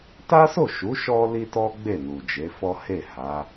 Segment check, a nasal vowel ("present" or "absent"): absent